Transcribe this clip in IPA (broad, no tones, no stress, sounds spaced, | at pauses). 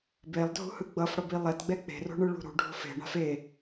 b e lˠ dʱ ṳ h ɯ ɡ͡b ʌ f ɽ ʌ b i lˠ ɛ t ɡ͡b ɛ k͡p e̤ r o̤ ɳ ɯ ɭ ṳ ɾ ṳ ɖʱ o̤ f e̤ ɳ a̤ f e